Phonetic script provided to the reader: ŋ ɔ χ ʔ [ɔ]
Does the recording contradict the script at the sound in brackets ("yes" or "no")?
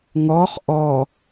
no